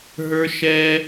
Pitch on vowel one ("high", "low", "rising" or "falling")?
high